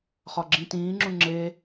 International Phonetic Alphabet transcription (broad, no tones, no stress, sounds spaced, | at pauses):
χ ɒ ɡ͡ǁ ĩ t ĩː ŋ͡ǁ ũ ŋ͡ǁ e